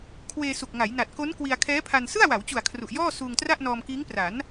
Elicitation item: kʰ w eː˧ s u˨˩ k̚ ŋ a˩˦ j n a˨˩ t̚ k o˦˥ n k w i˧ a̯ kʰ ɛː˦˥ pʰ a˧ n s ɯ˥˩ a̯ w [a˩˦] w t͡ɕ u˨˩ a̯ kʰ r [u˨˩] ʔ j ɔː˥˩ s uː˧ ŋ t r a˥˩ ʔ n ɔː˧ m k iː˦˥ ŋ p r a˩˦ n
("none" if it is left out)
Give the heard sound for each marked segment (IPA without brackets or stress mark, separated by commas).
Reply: a˩˦, u˨˩